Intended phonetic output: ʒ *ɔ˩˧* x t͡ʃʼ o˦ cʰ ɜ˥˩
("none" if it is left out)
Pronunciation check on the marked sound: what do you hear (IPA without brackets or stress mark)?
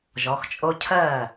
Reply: ɔ˩˧